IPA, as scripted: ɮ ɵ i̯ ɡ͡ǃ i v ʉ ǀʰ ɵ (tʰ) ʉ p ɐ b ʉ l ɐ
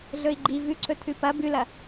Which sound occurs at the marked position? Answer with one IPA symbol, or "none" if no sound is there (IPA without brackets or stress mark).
tʰ